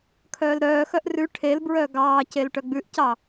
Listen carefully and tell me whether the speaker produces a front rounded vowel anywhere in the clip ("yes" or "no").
yes